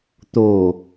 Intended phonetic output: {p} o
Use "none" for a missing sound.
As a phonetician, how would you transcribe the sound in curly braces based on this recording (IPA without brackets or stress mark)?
t̪